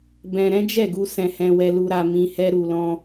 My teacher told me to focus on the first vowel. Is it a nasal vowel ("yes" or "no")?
yes